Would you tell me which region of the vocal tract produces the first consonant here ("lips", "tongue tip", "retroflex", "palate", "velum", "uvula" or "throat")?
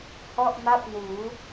throat